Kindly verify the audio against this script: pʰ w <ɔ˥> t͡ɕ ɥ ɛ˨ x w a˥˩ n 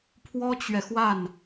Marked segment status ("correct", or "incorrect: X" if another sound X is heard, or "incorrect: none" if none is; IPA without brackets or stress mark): correct